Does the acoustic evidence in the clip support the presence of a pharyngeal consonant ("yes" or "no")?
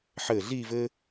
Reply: yes